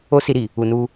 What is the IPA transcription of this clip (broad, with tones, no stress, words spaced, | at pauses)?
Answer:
o˦si˧ɾi˨ | u˨nu˧